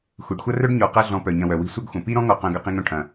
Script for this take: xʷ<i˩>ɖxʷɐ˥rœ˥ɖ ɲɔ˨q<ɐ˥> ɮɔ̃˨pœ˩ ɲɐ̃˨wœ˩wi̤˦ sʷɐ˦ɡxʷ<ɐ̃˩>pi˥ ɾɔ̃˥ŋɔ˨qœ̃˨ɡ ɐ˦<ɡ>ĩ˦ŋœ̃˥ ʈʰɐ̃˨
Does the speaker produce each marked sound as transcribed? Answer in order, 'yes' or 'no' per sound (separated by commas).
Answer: yes, yes, yes, no